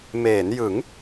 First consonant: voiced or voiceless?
voiced